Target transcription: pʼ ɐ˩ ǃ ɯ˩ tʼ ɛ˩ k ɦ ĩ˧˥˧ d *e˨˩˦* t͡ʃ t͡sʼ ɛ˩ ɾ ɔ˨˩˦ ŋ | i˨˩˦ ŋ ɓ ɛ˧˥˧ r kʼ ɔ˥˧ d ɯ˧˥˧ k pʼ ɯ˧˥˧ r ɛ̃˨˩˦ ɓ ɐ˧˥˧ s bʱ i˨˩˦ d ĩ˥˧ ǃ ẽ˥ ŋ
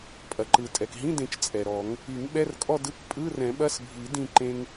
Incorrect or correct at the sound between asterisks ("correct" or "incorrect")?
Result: incorrect